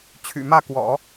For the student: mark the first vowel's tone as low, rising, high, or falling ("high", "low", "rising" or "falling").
low